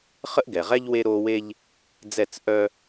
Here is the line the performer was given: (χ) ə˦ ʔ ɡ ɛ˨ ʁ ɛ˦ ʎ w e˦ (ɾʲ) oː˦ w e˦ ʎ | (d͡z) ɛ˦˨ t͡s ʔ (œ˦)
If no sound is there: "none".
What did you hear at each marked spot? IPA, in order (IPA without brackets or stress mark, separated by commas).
χ, ɾ, d͡z, œ˦